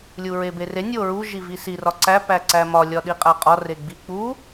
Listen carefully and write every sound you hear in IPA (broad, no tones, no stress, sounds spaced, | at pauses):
lʲ u ɹ e b e r e nʲ o ɹ u ʒ i v i s i r ɒ ǀ æ p æ ǀ æ m ɒ lʲ ɒ ɗ i qʼ æ qʼ ɒ r e ɡ͡b i k͡p u